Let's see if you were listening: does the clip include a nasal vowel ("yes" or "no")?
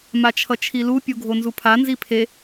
no